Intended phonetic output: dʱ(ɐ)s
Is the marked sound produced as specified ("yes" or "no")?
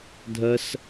yes